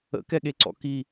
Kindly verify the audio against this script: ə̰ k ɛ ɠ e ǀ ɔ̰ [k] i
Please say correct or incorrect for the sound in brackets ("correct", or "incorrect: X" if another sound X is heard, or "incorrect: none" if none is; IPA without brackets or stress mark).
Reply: correct